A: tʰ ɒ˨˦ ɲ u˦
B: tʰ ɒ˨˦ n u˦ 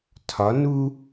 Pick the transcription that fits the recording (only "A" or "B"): B